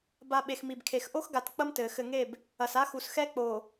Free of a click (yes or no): yes